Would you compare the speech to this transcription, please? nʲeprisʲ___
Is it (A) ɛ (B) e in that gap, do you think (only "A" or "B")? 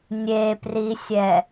A